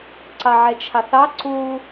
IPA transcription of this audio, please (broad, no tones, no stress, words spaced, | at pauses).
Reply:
ǀɑʕɛt͡ʃʰɑθɑ ǀu